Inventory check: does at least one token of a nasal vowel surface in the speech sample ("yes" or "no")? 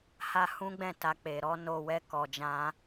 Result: yes